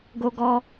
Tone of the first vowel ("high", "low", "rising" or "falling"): high